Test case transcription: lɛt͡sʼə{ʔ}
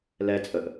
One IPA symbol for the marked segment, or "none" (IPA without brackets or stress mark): ʔ